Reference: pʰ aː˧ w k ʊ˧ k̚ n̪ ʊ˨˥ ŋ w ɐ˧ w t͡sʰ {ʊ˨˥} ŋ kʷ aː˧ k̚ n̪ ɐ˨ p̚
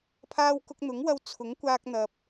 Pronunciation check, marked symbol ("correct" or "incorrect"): correct